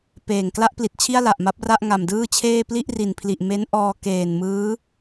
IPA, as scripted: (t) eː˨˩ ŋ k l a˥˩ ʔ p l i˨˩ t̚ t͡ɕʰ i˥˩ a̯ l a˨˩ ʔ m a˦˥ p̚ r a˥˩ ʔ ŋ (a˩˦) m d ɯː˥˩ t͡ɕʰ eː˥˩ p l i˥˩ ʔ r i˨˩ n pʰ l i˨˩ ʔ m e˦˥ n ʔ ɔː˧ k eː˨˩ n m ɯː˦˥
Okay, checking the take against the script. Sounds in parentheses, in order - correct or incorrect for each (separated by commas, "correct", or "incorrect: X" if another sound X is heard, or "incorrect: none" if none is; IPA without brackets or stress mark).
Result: incorrect: p, incorrect: a˨˩